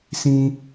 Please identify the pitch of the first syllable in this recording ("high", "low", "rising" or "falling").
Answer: high